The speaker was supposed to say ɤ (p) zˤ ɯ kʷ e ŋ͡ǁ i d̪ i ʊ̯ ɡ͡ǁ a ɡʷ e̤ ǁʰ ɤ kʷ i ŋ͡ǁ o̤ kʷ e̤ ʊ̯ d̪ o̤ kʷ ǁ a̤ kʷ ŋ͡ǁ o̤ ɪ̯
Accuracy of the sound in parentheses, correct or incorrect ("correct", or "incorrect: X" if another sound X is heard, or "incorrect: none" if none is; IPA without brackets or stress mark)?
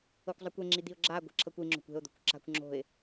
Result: incorrect: kʷ